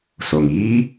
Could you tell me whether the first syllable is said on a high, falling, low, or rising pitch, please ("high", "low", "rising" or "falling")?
low